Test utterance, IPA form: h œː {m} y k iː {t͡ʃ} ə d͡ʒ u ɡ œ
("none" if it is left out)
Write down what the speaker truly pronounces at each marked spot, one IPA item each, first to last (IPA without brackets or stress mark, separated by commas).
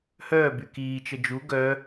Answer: b, t͡ʃ